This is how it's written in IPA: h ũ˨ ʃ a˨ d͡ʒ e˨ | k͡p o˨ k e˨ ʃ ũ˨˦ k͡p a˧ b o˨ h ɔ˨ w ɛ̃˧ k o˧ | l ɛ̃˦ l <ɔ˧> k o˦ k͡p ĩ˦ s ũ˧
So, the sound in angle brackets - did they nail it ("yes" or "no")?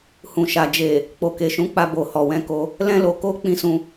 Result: no